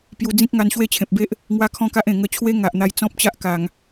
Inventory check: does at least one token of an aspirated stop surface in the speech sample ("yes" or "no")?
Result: yes